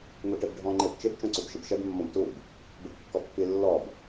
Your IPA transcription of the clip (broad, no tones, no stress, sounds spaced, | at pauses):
ŋ u ʈ e b ɖʱ ɔ̃ ŋ͡ǃ e b t͡ʃ ɪ b t͡ʃ õ ǀ u b ʃ ɪ b ʃ ɛ b mː ɔ̃ b t u b | b e b kː ɔ pː i lː ɔ b